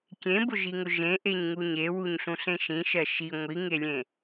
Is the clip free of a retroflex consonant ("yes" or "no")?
yes